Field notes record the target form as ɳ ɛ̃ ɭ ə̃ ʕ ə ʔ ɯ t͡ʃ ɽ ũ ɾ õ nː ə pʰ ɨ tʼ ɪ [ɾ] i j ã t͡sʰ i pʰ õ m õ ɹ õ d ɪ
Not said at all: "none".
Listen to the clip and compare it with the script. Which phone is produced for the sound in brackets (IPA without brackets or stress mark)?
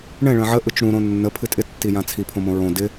tː